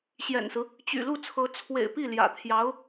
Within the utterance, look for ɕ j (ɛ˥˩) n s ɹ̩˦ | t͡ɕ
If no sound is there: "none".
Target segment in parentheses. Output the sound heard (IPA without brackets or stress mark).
ɛ̰˨˩